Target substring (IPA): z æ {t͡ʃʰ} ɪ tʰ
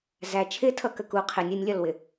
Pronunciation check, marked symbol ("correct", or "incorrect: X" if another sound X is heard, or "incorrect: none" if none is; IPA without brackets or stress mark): correct